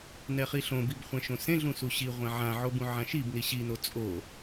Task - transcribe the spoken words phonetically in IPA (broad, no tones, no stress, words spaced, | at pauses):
nɛχiɬõbib χʷɛ̃ʃõsẽɮũ suɕiʁʷɛ̃ ʕãʕo bũʕãʃibni ɕino t͡sʼo